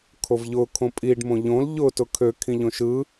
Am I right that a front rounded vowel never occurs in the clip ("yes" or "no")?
no